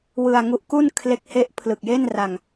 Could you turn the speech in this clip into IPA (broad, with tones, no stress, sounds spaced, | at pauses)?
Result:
w ɯ˧ a̯ ŋ u˦˥ ʔ k u˥˩ n kʰ l e˦˥ k̚ h e˦˥ ʔ pʰ l ɯ˨˩ k̚ j e˥˩ n r a˧ ŋ